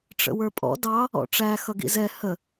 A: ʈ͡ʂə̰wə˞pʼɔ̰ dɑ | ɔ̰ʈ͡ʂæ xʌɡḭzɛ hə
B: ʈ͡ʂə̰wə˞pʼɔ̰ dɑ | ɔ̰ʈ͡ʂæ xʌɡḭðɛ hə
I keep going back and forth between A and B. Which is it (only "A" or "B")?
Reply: A